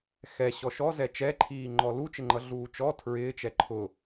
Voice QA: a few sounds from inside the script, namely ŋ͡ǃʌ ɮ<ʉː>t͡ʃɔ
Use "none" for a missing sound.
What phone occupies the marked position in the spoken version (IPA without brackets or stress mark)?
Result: uː